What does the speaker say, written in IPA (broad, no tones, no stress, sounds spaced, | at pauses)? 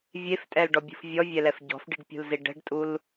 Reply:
vʲ e f tʼ ɛ l ɖ ɔ bʲ ṳ f vʲ ɔ vʲ ɛ l ɛ f ɟ ɔ̤ f ɖ i ɖ pʲ ṳ l z i ɖ ɛ̤ ɖ tʼ u l